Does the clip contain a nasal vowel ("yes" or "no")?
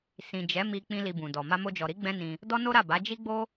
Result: yes